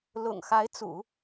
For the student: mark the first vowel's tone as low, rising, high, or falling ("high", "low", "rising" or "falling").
low